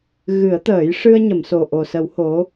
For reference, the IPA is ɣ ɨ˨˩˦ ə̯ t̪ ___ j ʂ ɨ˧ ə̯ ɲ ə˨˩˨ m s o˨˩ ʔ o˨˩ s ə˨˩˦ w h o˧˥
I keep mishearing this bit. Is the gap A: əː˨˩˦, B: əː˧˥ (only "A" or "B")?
A